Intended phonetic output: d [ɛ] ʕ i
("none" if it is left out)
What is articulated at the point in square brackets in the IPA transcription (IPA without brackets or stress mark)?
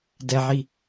ɛ